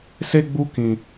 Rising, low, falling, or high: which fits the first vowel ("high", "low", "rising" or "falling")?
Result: high